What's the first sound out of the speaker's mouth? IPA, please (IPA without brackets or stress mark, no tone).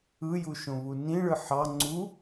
ɯ